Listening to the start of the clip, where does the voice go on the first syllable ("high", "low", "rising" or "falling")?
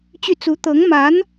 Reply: falling